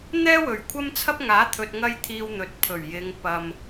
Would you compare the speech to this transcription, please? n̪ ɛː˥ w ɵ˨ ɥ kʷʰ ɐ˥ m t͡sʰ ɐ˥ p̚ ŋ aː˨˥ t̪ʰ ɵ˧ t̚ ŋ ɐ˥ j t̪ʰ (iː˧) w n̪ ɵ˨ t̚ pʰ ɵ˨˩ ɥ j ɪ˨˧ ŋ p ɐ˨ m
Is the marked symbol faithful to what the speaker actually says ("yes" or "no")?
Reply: yes